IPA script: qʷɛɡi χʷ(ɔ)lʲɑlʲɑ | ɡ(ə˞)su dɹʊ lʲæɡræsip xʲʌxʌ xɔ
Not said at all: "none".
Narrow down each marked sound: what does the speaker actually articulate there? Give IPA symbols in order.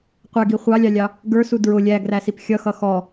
ɑ, ə˞

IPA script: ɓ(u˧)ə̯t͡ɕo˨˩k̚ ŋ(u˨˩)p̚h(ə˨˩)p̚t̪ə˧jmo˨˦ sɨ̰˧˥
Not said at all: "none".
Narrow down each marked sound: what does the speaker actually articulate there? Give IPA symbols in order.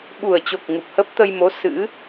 u˨˩, u˨˩, ə˦˥

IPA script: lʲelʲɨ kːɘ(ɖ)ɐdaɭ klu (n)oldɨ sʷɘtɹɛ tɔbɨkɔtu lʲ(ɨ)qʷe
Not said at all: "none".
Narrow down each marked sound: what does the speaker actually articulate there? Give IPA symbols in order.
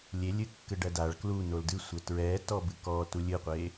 ɖ, n, ɨ

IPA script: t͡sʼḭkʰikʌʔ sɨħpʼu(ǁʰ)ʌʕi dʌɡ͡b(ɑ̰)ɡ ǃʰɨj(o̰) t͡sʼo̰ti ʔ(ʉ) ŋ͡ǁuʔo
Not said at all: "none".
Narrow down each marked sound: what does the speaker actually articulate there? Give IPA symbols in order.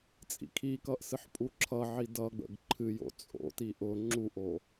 ǁʰ, ə̰, o̰, ʊ

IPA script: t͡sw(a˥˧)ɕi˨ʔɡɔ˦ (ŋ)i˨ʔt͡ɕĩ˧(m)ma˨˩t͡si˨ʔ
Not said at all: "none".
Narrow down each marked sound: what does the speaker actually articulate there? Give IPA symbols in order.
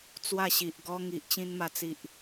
a˥˧, ŋ, n

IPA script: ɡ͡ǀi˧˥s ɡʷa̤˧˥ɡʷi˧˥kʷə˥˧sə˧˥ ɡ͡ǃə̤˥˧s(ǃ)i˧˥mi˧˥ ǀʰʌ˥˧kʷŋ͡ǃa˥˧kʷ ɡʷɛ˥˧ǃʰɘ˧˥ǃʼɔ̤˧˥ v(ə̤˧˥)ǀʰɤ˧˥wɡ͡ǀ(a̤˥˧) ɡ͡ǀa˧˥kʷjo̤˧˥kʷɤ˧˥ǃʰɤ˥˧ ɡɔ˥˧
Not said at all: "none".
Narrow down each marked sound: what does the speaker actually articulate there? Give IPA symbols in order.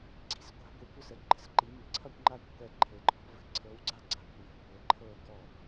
ǃ, ə̤˧˥, a˥˧

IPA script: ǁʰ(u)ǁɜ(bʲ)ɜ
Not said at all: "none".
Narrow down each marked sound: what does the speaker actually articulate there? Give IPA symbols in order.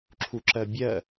u, bʲ

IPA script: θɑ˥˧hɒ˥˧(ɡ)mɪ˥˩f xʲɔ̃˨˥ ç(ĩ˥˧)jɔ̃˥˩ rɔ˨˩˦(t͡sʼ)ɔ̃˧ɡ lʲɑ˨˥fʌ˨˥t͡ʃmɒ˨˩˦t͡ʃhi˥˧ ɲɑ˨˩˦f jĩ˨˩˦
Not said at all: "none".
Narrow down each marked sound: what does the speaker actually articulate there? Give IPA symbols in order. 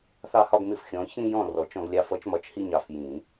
ɡ, ĩ˥˧, t͡ʃ

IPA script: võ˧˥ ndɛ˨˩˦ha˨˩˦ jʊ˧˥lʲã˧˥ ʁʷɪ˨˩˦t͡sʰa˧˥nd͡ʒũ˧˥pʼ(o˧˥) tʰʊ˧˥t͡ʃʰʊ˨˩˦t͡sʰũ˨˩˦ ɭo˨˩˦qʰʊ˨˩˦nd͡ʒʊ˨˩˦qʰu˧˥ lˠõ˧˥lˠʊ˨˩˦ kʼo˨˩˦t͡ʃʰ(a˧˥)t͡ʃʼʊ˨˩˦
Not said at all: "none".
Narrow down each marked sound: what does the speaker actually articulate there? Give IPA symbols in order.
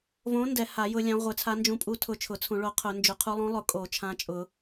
u˧˥, ã˧˥

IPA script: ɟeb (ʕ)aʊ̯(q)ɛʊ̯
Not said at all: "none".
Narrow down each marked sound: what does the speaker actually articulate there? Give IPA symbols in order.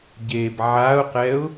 ʕ, q

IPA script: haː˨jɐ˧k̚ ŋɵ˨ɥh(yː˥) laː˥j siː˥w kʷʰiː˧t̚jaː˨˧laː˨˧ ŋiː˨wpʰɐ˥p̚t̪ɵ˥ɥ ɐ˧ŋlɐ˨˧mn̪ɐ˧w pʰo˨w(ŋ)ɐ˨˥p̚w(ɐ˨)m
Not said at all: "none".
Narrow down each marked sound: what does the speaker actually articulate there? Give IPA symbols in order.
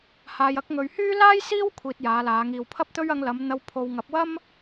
yː˥, ŋ, ɐ˥

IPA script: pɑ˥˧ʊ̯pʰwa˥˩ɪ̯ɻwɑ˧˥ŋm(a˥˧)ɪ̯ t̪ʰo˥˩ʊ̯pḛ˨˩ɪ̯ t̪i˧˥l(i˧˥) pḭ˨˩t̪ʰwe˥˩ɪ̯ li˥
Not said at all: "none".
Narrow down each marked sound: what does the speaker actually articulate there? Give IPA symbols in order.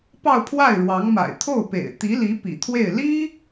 a̰˨˩, i˧˥

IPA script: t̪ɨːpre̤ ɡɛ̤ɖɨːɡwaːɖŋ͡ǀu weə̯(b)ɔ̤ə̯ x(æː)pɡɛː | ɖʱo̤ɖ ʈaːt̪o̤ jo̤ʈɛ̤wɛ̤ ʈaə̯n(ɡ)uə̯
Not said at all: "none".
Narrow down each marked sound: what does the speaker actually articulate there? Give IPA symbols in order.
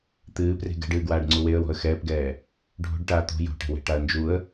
w, ɛː, d͡ʒ

